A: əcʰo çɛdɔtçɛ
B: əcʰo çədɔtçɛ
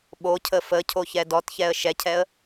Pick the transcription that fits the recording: A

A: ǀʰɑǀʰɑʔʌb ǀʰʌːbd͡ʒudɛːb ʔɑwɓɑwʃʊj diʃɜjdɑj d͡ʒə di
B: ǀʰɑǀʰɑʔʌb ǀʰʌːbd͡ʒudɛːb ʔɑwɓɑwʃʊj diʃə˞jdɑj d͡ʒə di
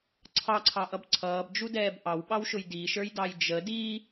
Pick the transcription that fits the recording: B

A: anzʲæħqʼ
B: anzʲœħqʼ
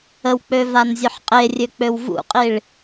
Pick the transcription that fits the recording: B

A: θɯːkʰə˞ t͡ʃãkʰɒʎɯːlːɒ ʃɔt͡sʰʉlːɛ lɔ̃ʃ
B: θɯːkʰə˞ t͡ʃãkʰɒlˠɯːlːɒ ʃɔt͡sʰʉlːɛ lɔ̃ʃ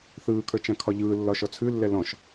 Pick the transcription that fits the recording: A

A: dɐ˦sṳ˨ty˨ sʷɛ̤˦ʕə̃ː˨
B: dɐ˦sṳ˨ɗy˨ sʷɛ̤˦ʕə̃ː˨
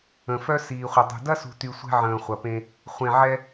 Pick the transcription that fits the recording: A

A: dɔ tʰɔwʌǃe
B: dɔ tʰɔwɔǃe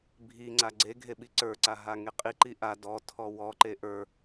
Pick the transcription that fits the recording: B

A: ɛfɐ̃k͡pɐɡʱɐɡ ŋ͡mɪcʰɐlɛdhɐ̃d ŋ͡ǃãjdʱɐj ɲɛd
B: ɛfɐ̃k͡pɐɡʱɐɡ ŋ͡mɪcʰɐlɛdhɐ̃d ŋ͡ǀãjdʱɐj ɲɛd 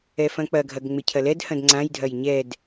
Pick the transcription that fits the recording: B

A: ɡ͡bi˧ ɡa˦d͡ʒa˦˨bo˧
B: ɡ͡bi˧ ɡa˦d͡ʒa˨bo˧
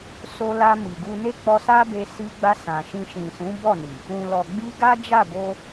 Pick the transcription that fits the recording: A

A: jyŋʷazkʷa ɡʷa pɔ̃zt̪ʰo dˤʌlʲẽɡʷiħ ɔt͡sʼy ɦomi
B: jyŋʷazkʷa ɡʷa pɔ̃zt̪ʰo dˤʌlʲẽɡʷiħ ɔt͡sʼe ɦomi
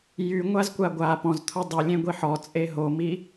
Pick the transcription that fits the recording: B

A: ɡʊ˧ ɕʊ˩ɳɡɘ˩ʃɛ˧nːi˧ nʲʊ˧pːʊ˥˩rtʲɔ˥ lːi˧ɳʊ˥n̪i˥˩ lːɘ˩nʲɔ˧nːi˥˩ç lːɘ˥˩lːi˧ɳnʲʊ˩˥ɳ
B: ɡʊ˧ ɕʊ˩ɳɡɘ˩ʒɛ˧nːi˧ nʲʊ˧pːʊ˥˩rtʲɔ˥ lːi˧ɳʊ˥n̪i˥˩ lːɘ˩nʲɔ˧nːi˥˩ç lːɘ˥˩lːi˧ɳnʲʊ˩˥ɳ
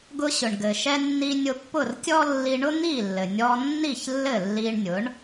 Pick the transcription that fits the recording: A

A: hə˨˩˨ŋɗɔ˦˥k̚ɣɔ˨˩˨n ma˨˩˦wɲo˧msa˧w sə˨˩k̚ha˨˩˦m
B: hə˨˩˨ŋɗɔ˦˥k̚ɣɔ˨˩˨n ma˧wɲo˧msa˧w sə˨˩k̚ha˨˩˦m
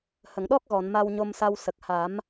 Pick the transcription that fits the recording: B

